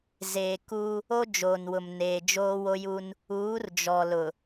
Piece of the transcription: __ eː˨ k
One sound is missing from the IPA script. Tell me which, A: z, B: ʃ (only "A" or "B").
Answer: A